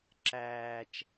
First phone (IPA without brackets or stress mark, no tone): ǁ